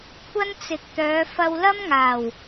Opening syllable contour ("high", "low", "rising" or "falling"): high